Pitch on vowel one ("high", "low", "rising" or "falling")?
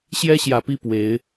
high